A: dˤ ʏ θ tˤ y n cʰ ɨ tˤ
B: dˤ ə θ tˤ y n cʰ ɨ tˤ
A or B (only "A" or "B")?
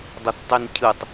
B